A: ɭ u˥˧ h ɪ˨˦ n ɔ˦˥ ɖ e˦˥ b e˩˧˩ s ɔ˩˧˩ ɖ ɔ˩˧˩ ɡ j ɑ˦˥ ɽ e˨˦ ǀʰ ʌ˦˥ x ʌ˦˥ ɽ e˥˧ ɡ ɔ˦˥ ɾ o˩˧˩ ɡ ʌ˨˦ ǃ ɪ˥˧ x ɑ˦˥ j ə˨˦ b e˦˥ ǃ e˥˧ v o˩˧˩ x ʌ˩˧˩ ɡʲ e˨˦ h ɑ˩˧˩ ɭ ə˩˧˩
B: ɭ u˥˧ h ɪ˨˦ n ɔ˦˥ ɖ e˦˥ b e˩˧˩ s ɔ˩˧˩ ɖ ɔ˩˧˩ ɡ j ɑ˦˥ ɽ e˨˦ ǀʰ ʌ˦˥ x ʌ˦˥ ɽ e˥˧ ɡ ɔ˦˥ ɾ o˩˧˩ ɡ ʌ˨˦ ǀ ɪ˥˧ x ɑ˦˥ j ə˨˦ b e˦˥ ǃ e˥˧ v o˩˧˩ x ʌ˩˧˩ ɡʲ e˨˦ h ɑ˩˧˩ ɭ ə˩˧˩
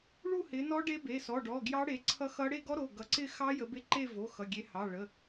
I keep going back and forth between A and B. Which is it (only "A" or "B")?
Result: B